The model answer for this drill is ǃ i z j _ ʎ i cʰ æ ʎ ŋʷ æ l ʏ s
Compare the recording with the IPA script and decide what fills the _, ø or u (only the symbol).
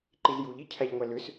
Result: u